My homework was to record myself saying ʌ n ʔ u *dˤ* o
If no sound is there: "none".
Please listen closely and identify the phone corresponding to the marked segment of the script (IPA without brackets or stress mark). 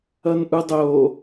dˤ